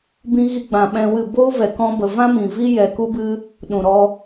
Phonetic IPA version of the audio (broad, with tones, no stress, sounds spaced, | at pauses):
b ĩ˧ ɣ i˧ ɡ͡b ã˨ ɓ ɛ̃˧ w ɨ˦˨ b oː˦ v ɛ˨ k ɔ̃˧ b ə˨ v ã˦ m ĩ˨ v i˦ j ɛ˨ k u˦ b ɨ˦ | ɗ ũ˨ ɾ ɔ˧